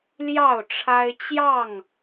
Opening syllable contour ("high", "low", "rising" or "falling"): falling